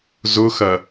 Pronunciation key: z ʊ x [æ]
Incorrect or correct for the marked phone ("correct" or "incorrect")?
incorrect